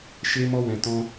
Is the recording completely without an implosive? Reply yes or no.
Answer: yes